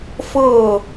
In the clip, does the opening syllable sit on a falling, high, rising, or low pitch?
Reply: falling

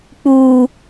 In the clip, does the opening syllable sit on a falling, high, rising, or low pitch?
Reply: low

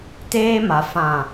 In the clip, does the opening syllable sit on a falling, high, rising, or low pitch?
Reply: high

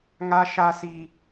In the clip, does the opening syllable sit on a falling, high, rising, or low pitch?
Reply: high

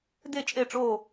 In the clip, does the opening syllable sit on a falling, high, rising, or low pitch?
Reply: falling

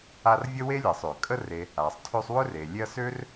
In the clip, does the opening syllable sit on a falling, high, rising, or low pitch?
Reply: high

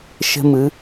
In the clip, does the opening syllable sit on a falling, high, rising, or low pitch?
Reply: high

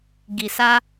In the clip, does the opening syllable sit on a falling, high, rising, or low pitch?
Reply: low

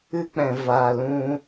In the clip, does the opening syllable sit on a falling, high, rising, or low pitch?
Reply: high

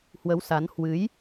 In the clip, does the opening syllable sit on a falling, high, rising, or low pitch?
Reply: rising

